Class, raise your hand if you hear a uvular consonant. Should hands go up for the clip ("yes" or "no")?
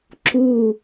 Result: no